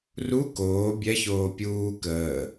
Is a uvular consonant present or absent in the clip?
absent